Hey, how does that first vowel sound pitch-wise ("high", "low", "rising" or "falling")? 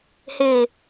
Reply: low